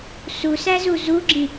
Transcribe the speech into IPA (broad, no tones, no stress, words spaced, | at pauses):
susæzu zuɡ͡ǁĩ